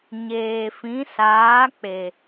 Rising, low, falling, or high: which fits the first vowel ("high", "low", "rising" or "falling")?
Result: low